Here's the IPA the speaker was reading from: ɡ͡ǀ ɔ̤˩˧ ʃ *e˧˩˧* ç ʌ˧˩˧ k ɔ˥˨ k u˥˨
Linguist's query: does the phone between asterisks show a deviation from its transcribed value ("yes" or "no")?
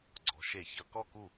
no